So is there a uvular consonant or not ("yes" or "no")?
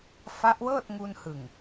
no